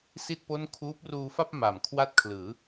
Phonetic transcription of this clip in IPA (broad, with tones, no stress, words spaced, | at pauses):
si˥˩t̚ po˥˩n kʰuː˦˥p̚ruː˧fa˥˩p̚ ma˨˩mkʰwa˥˩t̚kʰlɯː˩˦